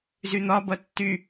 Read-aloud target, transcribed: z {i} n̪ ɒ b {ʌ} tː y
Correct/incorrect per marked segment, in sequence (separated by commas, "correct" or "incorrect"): incorrect, correct